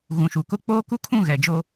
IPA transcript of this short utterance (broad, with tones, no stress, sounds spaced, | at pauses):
ɣ ũ˨ ʃ u˨ k ʊ˦ k͡p oː˦ k u˦ kʰ ũ˦˨ ɣ ɛ˨ d͡ʒ o˦